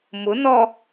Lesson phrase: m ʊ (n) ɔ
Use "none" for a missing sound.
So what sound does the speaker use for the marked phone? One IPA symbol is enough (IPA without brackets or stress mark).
n